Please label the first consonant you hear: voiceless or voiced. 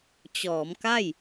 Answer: voiceless